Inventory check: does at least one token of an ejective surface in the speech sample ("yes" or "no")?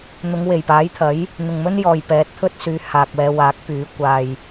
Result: no